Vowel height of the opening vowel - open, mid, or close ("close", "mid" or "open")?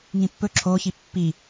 close